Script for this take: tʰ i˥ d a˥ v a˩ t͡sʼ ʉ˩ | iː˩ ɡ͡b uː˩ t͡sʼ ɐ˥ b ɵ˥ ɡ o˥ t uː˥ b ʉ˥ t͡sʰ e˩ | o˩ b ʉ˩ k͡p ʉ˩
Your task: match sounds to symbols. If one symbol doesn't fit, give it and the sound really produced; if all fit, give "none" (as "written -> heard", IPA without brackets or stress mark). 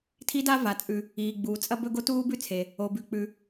none